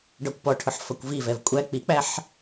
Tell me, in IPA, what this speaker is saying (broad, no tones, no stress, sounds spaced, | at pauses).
ɖ ɒ kʷ p ɔ ʈʰ ʊ ħ f ʌ kʷ v i v ɛ v kʷʼ æ k͡p i k͡p æ ħ